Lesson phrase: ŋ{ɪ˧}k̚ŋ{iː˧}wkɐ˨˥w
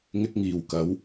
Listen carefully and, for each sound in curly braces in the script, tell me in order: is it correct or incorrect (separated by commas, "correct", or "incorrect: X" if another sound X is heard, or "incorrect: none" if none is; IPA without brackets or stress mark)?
correct, incorrect: iː˨˩